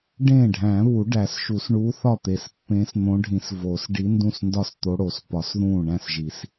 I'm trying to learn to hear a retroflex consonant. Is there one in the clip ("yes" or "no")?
yes